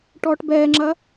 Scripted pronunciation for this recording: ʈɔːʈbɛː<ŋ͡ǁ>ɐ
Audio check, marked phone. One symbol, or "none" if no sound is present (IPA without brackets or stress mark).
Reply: ŋ͡ǁ